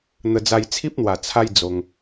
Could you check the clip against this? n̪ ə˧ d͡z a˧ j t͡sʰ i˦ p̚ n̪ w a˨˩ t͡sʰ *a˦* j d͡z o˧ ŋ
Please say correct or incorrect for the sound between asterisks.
correct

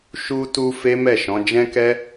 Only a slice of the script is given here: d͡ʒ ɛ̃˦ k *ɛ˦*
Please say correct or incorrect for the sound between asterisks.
correct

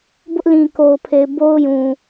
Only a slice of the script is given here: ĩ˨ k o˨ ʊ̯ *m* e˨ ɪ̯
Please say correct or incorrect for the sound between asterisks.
incorrect: pʰ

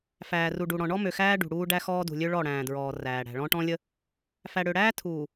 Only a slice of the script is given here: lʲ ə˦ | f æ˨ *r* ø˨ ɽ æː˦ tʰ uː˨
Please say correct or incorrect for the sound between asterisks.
incorrect: ɽ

